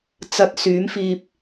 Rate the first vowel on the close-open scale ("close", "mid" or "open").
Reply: open